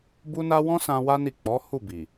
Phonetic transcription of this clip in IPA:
b u˦ n a˦ w ɔ̃˦ s ã˧ w a˦ n i˦˨ k͡p ɔ˨˦ h u˦˨ b i˨

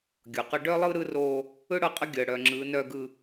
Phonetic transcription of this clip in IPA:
ɡʲ ɤ˨ q ɤ˦ ɖ œː˦ lˠ ɯː˦ ɾ ɯː˦ r oː˦ | ɯ˦ ɽ ɤ˦˨ qʼ ə˦ ɡʲ əː˨ ɽ œ˨ ŋ͡ǁ ɯː˨˦ n œː˦ ɡ ɯ˦

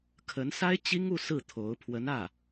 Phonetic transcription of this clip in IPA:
kʰ ə˧˥ n s a˥ ɪ̯ t͡ɕ i˥ ŋ u˥˧ s ɹ̩˥˩ t̪ʰ o˧˥ ʊ̯ pʰ w ə˧˥ n ä˥˩

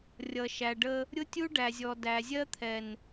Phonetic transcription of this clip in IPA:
rʲ ʌ˨ ʃ æ˨ ɖ ə˦ | ɾʲ ʊ˦ tʲ u˦ ɖ æ˨ zʲ ɔ˨ d æ˨ zʲ ɜ˦ t̪ʰ ɛ˨ n

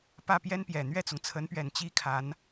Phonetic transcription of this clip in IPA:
p ä˥˩ p j ɛ˥ n p j ɛ˨˩ n̪ ɥ ɛ˥˩ t͡s ʊ˩ ŋ t͡sʰ ə˧˥ n p ɥ ɛ˨˩ n t͡ɕ i˥ kʰ a˧˥ n

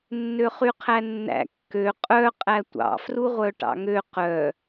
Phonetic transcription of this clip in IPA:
nː ø χ y qʰ æ nː æ̰ kː ø qʼ œ qʼ æ tʷ ɑ̰ f r u ʁʷ œ ʈ ɑ̰ ŋ ø q œ

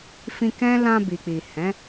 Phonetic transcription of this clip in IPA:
f ĩ˧ k ɛ̃˦ l ã˧ b i˨ k͡p i˨ h ɛ̃˨˦

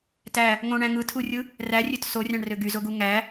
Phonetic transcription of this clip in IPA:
t æ | ŋ õ ɳ æ̃ ŋ ɯ tʰ u rʲ ɯ | r æ rʲ ø t s o rʲ ɑ̃ ɳ r ø ɡ y z o ɡ u ŋ æ

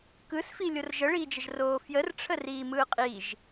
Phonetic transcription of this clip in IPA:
k ɯ s f i lʲ o r ʒ ə ɭ iː d͡ʒ ə ʒ r oː f j ə r ʈ͡ʂʰ ə r iː m ɯː qʼ i ʒ

